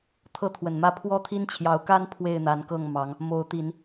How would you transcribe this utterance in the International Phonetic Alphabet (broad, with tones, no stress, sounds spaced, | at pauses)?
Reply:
t̪ʰ ɤ˦ t̪ʰ w ə˨˩ n m ä˥˨ pʰ w ɔ˦ t̪ʰ i˦ n t͡ɕʰ j ɑ˨˦ ʊ̯ k a˦ n pʰ w e˥˨ ɪ̯ n̪ a˨˦ n k ɤ˥˨ ŋ m ɑ˨˦ ŋ | m o˨˦ ʊ̯ t̪ i˨˦ n